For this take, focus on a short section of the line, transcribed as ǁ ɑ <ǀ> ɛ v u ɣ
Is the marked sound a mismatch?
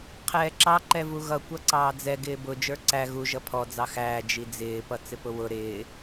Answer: yes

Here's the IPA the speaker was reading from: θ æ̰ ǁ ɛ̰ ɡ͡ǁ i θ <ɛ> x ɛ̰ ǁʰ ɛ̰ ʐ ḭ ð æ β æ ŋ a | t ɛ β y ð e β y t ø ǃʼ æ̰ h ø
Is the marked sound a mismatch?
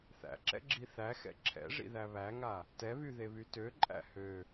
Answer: yes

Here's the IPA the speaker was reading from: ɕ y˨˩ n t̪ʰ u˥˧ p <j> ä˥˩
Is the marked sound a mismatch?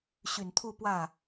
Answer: yes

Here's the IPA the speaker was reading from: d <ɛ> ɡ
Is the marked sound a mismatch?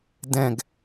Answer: yes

